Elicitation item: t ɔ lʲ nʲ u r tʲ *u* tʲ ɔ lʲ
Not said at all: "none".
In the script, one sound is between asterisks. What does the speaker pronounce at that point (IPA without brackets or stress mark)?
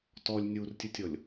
ɯ